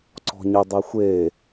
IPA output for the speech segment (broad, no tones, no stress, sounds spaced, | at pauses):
ǀ ɔ̤ ɲ ɪ dˤ e xʷ e